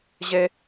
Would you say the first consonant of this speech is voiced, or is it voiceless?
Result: voiced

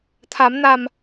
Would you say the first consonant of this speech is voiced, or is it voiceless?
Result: voiceless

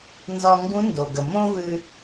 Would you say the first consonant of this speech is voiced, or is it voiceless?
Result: voiced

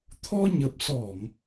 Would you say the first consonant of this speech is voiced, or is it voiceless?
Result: voiceless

